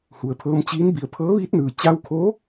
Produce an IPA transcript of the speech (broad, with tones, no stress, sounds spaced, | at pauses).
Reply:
h u˩ ə̯ pʰ ɤː˧ m t͡ɕ iː˧˥ n b i˩˧ ə̯ pʰ ɤː˧˥ ʋ iː˧˥ t̚ n ɯː˩ t͡ɕ a˧ w kʰ o˧˥